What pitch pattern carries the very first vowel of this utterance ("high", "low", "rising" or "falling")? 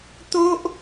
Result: high